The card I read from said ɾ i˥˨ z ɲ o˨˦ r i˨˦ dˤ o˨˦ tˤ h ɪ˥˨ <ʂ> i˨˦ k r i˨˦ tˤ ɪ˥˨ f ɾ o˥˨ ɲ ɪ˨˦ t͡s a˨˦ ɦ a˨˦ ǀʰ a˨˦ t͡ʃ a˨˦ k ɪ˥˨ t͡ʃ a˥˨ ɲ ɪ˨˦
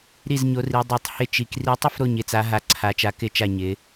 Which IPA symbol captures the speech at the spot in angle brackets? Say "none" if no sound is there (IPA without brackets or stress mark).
t͡ʃ